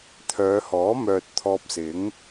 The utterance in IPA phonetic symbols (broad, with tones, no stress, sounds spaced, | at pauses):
t̪ʰ œː˨˧ h ɔː˨˥ m œː˨ t̚ t̪ʰ ɔː˧ p̚ s ɪ˨˥ ŋ